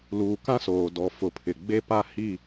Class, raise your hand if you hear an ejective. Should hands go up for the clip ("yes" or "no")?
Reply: no